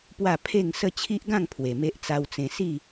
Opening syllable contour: falling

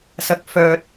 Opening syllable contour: low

